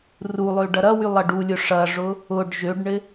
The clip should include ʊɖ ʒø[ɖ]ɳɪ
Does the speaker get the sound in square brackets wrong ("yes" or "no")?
no